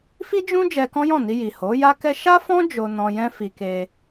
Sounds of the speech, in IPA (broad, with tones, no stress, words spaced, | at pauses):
fi˦d͡ʒũ˦ d͡ʒɛ˧kɔ̃˦jɔ̃˦˨ni˧ ji˨ho˨˦ja˦kɛ˦ ʃa˦fɔ̃˦ d͡ʒo˧nɔ̃˧jɛ̃˦ fi˧ke˧